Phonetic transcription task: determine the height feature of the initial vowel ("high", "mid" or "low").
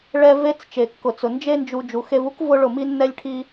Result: mid